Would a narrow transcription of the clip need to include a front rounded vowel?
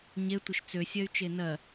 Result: yes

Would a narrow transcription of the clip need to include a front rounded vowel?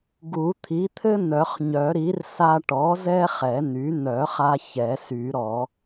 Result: yes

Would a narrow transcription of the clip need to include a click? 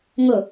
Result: no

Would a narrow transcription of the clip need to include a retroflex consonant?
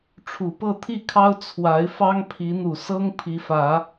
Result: yes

